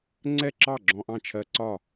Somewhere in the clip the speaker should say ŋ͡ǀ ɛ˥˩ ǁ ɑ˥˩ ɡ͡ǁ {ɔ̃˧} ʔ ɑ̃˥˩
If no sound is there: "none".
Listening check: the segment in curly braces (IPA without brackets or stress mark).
ɔ̃˧